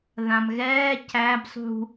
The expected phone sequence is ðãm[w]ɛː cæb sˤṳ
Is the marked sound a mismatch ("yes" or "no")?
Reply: yes